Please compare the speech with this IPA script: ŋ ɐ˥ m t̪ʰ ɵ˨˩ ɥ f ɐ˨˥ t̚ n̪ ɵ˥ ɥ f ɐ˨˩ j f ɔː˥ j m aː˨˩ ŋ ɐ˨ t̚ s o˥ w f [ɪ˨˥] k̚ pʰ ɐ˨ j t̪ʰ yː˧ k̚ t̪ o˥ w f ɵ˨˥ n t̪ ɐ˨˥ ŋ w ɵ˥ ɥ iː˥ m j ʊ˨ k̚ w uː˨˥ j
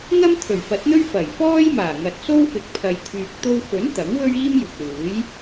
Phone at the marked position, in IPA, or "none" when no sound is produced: ɪ˨˥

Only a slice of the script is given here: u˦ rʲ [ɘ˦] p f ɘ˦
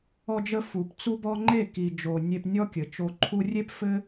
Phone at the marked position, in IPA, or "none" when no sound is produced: e˦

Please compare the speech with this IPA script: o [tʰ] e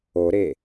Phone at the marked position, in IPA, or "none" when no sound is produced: ɾ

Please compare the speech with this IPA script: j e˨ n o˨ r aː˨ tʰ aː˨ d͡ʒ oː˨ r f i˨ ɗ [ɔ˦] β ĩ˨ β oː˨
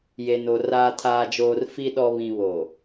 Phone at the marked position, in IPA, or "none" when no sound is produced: ɔ˨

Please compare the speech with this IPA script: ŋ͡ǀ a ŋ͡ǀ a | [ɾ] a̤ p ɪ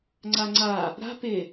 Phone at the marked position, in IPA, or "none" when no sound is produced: ɾ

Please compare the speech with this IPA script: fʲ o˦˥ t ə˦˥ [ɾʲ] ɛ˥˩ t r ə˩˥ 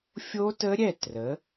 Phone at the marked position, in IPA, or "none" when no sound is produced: ɾʲ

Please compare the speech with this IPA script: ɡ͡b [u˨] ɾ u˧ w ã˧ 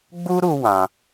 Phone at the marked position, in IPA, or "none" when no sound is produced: u˦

